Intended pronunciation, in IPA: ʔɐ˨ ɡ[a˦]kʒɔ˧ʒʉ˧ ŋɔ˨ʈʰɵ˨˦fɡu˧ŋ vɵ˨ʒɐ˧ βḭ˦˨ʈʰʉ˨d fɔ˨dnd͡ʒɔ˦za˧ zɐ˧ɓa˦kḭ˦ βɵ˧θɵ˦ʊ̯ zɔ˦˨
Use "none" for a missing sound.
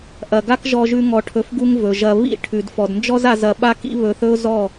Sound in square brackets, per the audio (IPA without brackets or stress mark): a˦